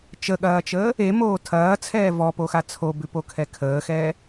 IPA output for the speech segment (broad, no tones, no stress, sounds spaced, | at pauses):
t͡ʃ ə ɠ ɐː t͡ʃ əː | e m oː tʰ ɐː t͡sʰ ɛː v ɔ p o x a t͡sʰ o b ʉ p o kʰ ɛ kʰ əː x ɛː